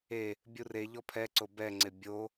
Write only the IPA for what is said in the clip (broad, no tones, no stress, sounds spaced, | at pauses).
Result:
e | bʲ u r e ʎ ɔ pʰ ɛ ǀ o b ɛ ŋ͡ǀ ɪ bʲ o